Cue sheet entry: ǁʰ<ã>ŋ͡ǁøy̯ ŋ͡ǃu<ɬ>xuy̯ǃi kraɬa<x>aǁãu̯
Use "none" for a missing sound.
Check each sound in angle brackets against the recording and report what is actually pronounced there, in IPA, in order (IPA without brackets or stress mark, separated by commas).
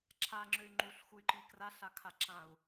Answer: a, ɬ, kʰ